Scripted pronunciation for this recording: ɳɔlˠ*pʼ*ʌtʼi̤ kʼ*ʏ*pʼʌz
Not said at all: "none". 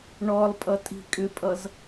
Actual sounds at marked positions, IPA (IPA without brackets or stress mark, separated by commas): pʼ, ʏ